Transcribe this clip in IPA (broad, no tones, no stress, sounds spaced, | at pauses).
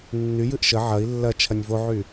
nː y j ɨ ʔ ʃ ə ʕ ɐ i̯ lː ɐ t͡ʃʰ ɐ nʲ v o ʕ y